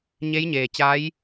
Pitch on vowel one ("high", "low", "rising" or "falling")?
rising